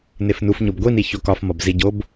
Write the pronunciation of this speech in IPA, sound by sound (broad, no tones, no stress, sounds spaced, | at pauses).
n e f n u f ɲ o b ɡʷ i n i ç o k ɒ f m ɒ b z i ɟ o b